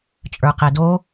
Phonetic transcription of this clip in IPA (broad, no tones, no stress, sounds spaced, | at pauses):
t͡ʃʼ ə˞ q ɛ d o